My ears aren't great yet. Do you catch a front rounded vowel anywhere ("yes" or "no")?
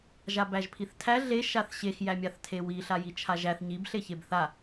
no